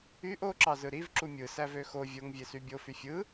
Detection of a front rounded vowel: present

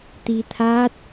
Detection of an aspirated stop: present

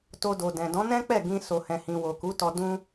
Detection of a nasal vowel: present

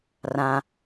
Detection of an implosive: absent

